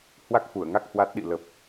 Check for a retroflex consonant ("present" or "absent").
absent